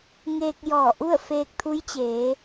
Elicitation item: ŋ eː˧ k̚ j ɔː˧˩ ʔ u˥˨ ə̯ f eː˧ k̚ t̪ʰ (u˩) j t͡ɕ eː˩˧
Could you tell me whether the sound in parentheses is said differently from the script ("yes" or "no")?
yes